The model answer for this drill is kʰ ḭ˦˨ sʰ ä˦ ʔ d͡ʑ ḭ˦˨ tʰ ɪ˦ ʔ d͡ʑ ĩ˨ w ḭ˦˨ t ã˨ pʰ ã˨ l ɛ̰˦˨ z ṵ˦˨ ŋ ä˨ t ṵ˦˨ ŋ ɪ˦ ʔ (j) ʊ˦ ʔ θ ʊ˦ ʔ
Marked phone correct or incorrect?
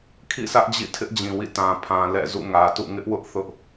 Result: incorrect: w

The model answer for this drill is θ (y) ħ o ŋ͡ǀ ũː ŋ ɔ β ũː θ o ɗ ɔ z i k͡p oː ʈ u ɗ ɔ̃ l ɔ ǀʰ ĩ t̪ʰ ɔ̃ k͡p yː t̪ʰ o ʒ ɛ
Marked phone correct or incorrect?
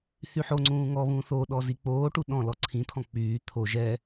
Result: correct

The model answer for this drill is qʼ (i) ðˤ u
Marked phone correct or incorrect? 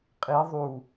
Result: correct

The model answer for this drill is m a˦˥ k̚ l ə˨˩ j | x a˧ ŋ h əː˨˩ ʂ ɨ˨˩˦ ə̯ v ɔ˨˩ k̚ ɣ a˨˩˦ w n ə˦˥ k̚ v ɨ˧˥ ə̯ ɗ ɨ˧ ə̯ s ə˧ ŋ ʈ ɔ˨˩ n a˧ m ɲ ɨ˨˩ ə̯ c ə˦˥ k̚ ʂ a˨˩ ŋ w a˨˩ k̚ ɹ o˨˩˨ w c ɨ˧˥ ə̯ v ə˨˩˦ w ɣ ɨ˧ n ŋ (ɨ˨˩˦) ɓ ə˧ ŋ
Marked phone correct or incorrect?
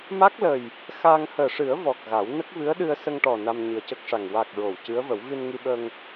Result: incorrect: ɨ˧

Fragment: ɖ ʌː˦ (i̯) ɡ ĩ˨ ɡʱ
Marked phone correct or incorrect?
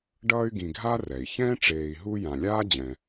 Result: incorrect: y̯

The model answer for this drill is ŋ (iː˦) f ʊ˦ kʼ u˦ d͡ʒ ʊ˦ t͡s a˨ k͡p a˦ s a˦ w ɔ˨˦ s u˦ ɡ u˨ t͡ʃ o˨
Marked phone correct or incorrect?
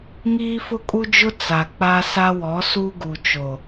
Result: correct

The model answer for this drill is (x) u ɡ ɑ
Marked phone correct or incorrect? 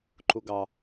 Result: incorrect: ǃ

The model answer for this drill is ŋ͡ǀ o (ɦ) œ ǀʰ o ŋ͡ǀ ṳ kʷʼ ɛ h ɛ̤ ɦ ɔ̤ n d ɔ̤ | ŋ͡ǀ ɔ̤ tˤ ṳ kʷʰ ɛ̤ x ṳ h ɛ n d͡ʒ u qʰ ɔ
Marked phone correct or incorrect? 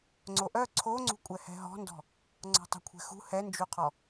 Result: incorrect: ʔ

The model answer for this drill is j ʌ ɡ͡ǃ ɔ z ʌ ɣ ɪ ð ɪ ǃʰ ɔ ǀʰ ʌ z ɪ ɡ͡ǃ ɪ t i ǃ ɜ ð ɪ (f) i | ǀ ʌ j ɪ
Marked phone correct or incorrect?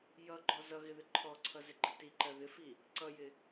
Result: correct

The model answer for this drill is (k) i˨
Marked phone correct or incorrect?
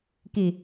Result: correct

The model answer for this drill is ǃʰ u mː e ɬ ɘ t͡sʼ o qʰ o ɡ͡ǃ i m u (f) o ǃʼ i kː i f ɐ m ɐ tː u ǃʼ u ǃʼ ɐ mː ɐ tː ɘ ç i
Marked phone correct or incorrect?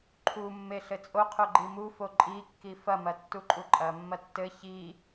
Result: correct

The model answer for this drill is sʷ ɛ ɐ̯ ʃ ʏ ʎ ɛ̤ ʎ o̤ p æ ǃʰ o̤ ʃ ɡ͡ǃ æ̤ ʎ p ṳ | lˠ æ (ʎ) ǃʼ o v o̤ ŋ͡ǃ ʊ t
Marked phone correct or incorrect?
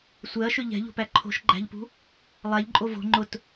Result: correct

